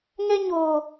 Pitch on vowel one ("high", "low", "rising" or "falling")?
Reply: high